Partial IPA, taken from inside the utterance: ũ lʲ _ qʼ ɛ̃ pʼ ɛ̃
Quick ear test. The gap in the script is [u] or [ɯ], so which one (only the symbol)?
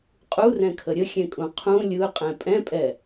ɯ